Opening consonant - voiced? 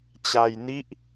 no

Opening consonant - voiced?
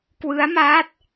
no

